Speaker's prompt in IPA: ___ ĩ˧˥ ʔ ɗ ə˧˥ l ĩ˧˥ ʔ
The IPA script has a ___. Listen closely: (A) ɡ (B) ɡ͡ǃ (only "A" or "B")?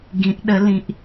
A